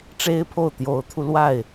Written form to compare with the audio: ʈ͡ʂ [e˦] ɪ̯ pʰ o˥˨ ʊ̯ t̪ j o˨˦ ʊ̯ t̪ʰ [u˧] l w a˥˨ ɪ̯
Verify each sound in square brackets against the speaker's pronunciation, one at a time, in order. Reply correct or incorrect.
correct, correct

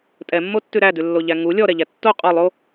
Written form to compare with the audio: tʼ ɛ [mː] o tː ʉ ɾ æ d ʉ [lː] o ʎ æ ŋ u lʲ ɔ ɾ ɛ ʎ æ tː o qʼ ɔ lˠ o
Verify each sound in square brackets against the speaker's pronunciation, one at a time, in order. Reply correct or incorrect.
correct, correct

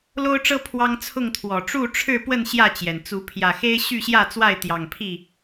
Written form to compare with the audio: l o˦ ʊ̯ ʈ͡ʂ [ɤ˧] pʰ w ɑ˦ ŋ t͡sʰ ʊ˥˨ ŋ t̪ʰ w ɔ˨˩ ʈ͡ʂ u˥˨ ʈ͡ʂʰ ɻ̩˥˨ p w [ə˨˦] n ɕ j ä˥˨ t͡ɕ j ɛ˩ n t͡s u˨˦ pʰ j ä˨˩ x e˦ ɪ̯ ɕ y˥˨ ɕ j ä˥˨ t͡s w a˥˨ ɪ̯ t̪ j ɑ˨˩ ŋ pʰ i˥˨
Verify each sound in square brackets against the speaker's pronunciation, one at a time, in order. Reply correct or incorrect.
incorrect: ɤ˦, incorrect: ə˥˨

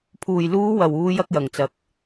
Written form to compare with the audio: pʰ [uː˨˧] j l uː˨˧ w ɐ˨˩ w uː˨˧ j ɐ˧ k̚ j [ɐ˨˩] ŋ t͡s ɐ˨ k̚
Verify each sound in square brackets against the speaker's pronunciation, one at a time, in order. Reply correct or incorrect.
incorrect: uː˨˩, correct

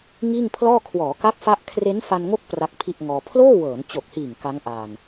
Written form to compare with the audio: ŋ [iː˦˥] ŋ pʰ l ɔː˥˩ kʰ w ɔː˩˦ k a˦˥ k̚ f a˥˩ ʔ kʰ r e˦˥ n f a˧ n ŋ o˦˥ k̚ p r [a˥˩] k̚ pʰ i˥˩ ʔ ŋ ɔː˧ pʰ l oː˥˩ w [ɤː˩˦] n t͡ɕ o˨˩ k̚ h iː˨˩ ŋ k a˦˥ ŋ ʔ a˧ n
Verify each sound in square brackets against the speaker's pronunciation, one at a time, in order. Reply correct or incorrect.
incorrect: iː˥˩, incorrect: a˦˥, correct

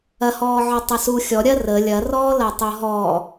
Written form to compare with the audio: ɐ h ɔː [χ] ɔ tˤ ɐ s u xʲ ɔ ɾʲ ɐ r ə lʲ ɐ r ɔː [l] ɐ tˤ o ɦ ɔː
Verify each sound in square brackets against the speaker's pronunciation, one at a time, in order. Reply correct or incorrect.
incorrect: ʕ, correct

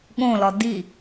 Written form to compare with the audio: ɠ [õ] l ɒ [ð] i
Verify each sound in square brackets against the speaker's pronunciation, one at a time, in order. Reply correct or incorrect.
correct, incorrect: d

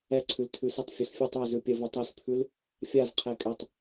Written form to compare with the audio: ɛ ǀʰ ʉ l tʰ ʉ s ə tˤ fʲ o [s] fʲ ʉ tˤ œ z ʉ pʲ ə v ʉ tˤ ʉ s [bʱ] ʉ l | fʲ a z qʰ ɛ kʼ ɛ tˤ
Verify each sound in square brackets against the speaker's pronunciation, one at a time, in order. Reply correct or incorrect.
correct, incorrect: pʰ

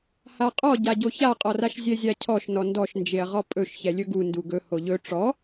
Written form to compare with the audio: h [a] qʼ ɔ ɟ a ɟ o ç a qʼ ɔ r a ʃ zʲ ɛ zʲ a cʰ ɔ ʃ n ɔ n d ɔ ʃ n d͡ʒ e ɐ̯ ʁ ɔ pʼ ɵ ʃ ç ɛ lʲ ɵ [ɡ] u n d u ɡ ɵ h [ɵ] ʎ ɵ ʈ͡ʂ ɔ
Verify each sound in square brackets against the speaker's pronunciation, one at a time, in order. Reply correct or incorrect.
correct, correct, incorrect: o

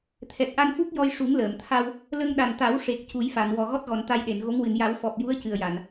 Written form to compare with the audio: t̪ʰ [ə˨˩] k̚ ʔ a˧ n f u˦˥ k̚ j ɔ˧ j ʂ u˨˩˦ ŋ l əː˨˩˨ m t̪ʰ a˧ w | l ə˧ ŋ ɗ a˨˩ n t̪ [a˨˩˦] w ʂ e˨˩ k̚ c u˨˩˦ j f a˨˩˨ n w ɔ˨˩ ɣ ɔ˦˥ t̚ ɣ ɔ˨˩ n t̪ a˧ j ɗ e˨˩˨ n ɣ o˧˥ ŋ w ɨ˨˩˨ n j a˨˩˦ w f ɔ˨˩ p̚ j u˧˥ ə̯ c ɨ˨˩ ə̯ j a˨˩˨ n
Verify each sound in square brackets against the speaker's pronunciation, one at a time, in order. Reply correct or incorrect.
incorrect: ɛ˨˩, correct

